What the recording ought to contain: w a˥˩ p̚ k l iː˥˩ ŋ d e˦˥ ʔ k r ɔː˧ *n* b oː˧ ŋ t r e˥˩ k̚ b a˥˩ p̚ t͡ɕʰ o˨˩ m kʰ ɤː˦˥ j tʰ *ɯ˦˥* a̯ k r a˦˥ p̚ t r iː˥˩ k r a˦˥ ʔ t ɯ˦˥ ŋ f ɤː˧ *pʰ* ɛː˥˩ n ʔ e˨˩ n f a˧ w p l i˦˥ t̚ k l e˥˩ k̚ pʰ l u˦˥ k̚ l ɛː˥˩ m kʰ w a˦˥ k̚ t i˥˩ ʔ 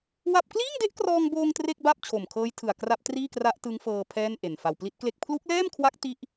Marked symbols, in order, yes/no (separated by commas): no, no, yes